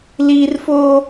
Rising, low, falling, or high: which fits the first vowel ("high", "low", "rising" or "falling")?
high